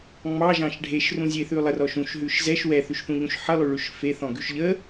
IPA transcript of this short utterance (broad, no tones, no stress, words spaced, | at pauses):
ŋ͡mɑʒɑ̃ʃ ɖʱeʃrũzʲeθʉ lˠərɔʃ ũʃɦʉʃ zɛʃ wɛθʉʃθũʎũʃ ħəlˠʉɭʉʃ feθɔ̃ɡʉʃ ʎə